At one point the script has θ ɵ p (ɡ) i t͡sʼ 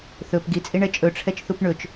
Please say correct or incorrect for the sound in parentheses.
correct